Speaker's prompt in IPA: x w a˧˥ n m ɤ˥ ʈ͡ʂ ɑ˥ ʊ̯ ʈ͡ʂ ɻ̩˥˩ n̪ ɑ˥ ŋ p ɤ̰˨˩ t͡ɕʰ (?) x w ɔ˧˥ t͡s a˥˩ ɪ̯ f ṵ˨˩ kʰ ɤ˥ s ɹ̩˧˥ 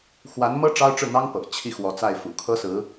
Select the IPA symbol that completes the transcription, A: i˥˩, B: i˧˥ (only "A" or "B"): A